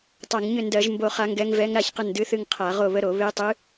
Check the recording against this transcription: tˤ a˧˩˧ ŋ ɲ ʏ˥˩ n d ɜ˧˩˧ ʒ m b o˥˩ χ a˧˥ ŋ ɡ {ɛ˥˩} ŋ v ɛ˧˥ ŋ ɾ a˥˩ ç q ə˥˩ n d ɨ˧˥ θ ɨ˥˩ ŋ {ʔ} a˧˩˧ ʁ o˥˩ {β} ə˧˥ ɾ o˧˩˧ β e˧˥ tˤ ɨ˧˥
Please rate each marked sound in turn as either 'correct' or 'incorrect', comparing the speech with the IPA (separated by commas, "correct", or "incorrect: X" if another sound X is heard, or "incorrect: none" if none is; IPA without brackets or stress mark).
incorrect: ɛ˧˥, incorrect: qʰ, correct